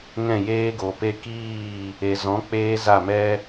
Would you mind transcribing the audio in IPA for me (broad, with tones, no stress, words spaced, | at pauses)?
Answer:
ŋɛ̃˦˨jeː˦ ɡo˨pe˧kiː˦˨ | e˨zɔ̃˨˦ k͡peː˦za˦˨mɛ˦